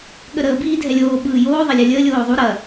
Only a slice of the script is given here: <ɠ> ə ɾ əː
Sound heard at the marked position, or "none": ɠ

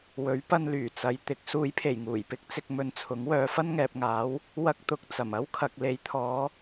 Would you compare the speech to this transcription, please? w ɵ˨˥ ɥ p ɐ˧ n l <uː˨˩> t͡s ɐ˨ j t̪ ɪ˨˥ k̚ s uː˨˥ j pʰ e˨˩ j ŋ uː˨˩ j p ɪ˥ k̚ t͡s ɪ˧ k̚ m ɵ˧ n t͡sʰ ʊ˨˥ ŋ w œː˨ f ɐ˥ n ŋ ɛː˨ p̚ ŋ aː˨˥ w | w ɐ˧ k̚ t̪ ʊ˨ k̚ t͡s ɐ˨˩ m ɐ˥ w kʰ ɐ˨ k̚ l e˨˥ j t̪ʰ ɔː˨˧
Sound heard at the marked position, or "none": yː˨˩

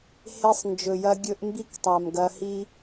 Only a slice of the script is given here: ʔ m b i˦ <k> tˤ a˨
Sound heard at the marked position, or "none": k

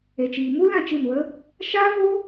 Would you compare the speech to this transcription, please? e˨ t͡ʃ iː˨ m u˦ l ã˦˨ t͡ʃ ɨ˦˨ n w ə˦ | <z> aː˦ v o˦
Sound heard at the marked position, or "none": ʃ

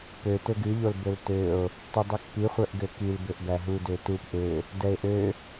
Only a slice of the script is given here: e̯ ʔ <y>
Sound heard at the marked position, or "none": ø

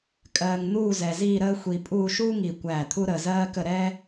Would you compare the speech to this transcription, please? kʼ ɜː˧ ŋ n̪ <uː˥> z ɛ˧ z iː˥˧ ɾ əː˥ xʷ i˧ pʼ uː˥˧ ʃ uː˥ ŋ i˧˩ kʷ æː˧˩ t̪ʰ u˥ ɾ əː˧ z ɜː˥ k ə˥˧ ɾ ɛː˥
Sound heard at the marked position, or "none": uː˥˧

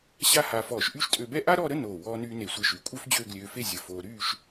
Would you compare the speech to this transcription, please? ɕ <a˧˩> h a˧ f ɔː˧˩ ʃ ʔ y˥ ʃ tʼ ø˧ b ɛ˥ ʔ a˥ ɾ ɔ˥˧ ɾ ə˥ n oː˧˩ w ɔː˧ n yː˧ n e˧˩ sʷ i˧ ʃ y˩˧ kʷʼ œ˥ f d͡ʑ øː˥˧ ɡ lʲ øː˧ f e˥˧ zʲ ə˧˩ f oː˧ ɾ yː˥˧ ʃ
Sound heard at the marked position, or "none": a˥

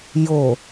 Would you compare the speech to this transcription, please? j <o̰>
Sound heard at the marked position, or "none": o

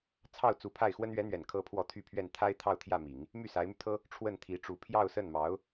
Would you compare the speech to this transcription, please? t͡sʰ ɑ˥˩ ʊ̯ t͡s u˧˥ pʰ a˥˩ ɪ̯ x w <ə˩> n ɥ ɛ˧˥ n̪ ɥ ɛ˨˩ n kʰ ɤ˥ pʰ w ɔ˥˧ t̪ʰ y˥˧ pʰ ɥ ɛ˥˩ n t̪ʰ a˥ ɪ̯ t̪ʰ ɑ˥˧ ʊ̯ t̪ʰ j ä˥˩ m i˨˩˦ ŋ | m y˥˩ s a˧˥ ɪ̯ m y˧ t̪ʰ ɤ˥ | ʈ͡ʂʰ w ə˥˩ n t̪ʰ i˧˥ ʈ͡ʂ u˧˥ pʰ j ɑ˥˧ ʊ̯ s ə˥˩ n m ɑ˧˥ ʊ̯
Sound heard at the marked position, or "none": ə˥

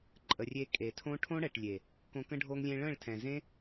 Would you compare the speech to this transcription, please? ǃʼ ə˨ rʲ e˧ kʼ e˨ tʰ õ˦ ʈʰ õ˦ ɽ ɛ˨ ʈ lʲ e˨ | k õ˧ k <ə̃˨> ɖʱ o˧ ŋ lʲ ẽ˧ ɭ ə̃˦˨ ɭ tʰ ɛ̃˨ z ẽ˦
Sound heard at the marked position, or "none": ə̃˦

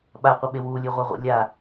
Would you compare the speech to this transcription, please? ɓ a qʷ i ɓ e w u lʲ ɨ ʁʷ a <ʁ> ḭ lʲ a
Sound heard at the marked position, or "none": ʁʷ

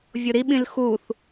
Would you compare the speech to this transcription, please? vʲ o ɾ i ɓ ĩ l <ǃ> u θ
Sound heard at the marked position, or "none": x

